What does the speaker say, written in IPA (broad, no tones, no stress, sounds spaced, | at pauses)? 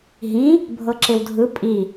ɦ ĩ | bʱ ɤ ǁ e w dʱ ɯ pʼ i